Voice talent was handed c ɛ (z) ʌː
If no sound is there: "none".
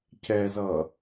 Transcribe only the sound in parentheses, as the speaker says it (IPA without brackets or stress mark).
z